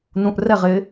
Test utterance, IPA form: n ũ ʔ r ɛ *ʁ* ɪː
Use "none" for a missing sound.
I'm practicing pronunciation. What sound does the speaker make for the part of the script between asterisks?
ʁ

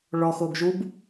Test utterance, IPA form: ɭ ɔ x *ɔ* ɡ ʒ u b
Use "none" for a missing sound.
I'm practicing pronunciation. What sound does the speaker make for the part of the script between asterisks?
o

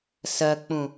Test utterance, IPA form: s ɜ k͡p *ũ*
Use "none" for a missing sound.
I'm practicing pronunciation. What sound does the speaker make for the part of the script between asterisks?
ũ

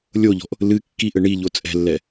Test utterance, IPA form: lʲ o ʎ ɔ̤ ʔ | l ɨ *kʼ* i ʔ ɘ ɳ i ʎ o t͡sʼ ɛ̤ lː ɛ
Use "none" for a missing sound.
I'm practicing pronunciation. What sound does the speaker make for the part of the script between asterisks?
kː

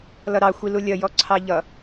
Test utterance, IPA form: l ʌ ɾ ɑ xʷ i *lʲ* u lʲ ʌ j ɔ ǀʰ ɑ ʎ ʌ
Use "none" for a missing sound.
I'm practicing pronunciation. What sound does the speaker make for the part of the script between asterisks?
l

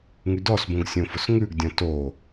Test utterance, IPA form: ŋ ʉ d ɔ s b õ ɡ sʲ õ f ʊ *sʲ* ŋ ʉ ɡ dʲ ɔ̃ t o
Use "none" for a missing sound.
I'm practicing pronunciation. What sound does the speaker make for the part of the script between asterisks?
s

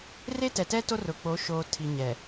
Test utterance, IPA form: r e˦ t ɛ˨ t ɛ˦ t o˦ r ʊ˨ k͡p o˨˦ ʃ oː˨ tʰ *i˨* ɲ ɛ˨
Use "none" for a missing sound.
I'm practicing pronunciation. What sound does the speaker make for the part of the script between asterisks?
i˨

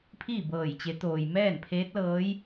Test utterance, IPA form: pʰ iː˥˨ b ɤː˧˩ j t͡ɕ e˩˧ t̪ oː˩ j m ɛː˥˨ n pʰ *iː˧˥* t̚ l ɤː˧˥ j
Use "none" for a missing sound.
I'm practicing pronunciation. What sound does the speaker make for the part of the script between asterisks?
eː˧˥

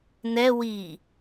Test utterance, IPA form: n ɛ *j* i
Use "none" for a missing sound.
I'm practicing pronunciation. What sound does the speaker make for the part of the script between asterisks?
w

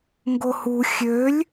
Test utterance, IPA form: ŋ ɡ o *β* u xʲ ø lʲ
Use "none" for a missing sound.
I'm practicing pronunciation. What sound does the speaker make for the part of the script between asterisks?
h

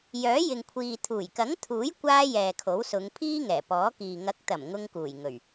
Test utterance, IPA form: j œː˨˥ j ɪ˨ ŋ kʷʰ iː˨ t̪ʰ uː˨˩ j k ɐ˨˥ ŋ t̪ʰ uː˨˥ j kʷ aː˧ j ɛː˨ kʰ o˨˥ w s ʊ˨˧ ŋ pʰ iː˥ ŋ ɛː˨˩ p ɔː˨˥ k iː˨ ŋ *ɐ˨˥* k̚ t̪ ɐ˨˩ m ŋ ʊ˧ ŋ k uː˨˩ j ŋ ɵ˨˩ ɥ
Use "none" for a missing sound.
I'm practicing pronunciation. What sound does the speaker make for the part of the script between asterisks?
ɐ˨˥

